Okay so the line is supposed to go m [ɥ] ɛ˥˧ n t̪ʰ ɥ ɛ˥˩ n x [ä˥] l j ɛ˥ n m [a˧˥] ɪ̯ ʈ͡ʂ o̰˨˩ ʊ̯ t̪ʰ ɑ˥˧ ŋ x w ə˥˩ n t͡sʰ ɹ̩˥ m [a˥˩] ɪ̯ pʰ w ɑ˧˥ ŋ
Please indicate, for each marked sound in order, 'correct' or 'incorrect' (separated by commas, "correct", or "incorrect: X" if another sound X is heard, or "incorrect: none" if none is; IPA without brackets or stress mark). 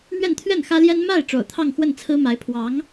correct, correct, incorrect: a˥˩, incorrect: a˧˥